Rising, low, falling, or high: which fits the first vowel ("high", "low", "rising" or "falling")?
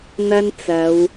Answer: high